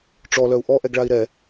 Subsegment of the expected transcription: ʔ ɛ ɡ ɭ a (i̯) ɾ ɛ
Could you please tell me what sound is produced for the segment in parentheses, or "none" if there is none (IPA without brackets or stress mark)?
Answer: i̯